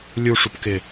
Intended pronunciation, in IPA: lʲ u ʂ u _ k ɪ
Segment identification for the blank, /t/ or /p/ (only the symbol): p